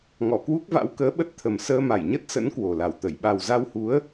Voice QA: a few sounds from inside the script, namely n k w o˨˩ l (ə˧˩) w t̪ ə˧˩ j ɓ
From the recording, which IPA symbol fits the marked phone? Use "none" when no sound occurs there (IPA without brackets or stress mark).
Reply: a˧˩